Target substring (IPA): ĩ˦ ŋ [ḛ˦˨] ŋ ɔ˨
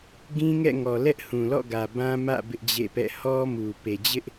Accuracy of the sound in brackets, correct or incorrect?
incorrect: ɛ̰˦˨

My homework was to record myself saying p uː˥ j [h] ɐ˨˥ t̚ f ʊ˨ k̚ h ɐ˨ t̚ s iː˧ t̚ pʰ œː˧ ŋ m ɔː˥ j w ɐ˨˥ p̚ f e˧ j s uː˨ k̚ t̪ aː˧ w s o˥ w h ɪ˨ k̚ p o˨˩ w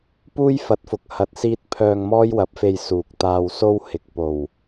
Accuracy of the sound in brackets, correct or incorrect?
incorrect: f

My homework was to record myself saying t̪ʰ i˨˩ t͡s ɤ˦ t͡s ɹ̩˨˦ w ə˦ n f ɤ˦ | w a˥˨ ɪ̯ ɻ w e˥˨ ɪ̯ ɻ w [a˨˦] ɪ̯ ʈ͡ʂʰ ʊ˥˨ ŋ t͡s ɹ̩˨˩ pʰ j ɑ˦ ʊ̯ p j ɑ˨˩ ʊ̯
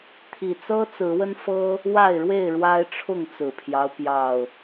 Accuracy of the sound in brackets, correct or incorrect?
incorrect: a˦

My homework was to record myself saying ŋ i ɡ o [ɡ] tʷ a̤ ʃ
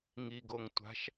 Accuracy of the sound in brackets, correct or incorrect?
incorrect: ŋ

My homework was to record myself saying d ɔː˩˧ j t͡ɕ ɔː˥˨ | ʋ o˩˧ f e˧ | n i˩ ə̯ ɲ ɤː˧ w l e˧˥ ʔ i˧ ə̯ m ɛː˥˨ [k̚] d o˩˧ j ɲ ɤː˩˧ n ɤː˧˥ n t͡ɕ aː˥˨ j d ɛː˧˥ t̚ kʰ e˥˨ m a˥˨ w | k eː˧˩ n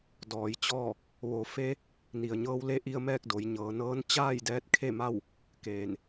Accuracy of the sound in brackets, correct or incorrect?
correct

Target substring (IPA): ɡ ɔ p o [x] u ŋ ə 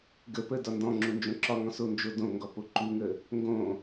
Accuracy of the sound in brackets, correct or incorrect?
incorrect: ǃ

